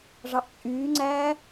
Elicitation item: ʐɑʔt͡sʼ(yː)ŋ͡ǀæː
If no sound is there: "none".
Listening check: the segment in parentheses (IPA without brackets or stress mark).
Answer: yː